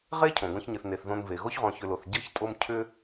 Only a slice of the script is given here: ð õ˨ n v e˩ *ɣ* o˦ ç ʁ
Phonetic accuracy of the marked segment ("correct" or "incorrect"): correct